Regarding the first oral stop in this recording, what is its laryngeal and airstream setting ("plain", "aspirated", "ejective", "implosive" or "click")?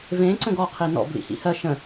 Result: click